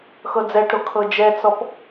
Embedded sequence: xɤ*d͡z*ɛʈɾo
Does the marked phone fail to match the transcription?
no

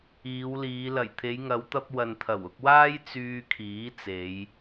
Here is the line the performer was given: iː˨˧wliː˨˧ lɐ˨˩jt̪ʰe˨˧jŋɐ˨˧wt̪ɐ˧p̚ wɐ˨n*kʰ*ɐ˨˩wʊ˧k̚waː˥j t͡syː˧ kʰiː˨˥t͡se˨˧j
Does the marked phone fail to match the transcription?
yes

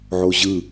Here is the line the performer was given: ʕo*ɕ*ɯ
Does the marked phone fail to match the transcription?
yes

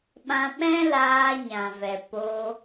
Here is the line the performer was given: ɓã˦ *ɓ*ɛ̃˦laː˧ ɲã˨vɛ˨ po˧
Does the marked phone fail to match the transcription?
no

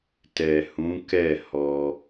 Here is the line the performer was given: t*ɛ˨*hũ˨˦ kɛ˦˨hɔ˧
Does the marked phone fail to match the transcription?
no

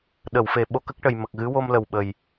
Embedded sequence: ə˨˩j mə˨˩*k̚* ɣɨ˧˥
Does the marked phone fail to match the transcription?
no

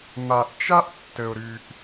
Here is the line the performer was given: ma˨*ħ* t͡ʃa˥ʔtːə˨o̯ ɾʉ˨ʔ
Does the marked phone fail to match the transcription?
yes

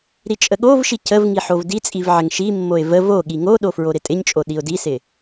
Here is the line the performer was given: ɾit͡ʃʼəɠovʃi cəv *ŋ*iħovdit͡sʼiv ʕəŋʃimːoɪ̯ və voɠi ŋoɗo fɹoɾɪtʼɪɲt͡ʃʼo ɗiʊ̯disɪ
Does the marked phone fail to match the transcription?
no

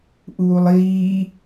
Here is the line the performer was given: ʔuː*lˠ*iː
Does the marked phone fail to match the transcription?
no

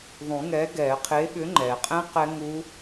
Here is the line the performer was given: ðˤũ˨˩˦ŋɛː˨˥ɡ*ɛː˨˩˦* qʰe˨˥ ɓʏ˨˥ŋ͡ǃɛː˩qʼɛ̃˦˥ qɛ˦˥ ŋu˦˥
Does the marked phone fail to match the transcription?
no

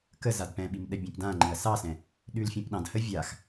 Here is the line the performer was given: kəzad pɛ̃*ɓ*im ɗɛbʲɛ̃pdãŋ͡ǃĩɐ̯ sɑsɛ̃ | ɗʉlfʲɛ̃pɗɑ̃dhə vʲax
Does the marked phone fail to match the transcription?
no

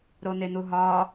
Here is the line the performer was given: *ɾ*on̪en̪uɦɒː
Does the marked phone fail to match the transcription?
no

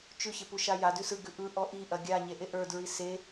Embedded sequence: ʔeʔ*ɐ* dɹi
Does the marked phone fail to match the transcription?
yes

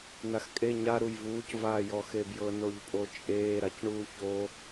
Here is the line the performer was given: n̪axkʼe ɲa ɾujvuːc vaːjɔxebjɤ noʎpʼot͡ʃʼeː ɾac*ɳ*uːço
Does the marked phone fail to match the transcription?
no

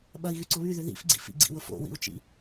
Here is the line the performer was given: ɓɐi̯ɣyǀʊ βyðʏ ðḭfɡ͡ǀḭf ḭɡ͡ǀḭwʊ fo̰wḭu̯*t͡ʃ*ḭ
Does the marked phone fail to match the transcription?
no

